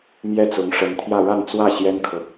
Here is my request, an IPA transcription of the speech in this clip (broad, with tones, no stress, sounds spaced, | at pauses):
m j ɛ˥˩ t͡s ʊ˧˥ ŋ ʂ ə˧˥ n t̪ʰ j ä˥˧ ɻ a˥˧ n t͡s w ä˥˩ ɕ j ɛ˥ n kʰ ɤ˨